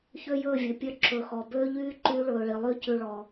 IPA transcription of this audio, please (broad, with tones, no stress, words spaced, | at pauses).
çø˦jɵː˦˨vʲɵ˨pʲœ˦˨ ǁɵ˨xɔ˨ bøː˦ʎyː˦ ǃyː˧ɭɵː˨ ɭi˨lˠyː˦cʉ˧ ɭɔ˨